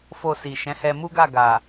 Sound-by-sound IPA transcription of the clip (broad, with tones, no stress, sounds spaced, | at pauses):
f o˧ s i˨ ʃ ɛ̃˨˦ h ɛ˧ m u˦ ɡ a˦˨ ɡ a˨